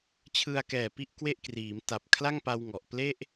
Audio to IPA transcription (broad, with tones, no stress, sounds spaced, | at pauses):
t͡ɕʰ ɯ˧ a̯ k ɛː˨˩ p i˥˩ ʔ k w e˥˩ ʔ k r iː˩˦ m t a˨˩ p̚ kʰ l a˥˩ ŋ p a˧ w ŋ ɔ˨˩ ʔ p l e˥˩ ʔ